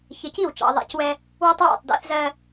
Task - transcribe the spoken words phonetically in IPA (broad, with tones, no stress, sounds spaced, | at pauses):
ç ɪ˨ c i˦˨ w t͡ʃ ɑ̰˨ ðˤ æ̰˦ c w ɛ˦ | w ʊ˦ tˤ w æ̰˦˨ tˤ d æ̰˦ θ z ɜ˦